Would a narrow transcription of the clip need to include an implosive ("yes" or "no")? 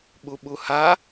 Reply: yes